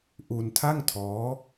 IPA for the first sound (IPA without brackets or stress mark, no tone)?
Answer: ʔ